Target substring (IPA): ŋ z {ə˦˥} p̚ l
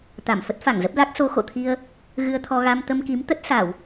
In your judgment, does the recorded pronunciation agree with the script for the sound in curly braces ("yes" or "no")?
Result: yes